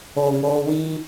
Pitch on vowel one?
low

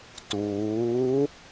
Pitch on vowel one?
rising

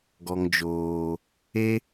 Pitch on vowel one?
low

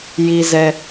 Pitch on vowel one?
low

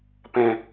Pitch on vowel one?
low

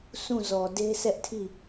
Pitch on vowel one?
falling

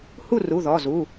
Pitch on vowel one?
falling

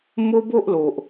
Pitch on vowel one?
high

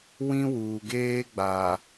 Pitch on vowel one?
high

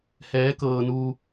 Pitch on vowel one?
rising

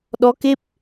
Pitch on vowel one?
rising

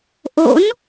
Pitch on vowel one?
rising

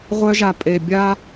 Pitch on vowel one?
high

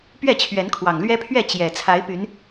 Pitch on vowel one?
falling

